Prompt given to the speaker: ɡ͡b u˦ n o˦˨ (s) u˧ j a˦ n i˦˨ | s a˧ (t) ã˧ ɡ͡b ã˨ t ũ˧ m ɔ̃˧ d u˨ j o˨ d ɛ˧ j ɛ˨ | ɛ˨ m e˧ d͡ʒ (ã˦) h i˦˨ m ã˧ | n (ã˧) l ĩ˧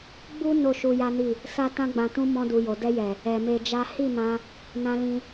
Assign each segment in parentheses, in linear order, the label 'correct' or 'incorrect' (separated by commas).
incorrect, correct, incorrect, correct